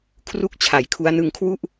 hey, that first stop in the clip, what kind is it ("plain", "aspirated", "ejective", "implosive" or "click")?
aspirated